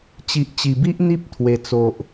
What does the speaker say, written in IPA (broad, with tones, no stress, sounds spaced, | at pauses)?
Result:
t͡ɕ i˨ ʔ t͡ɕ i˨˩ b i˦ ʔ n̪ i˦ p̚ t̪ʰ w e˨˩ t͡s o˨ ʔ